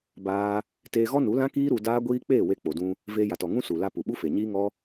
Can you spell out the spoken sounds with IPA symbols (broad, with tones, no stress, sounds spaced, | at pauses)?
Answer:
b aː˦ | t eː˧ ɣ ɔ˦ n u˨˦ l ã˦ k iː˦ ɾ u˧ d aː˦ ɡʷ iː˦ k͡p eː˦˨ w e˧ k͡p o˨ d ũ˧ | v eː˧ j a˨ t ɔ˨ ŋ ũ˦ s u˨ l a˧ p u˨ ɓ u˦ f e˨ ɲ iː˦ ŋ ɔ˦